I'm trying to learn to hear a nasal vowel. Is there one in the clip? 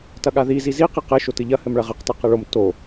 no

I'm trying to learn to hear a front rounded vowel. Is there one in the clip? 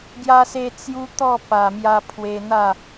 no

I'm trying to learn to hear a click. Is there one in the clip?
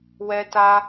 no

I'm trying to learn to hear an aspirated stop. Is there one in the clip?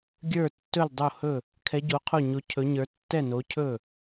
yes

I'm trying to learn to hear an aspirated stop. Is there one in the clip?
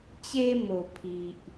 yes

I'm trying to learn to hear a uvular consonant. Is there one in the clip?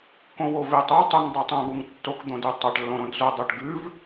no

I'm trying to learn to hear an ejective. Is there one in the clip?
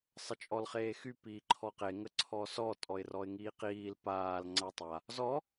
yes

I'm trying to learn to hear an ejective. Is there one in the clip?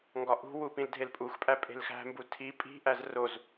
yes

